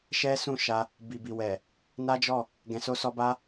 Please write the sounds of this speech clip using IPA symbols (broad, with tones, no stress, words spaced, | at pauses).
ʃɛ˦sũ˦˨ ʃa˧ | bi˨bi˨wɛ˨ | na˦d͡ʒɔ˦˨ | ɡɛ̃˨so˧sɔ˧ba˦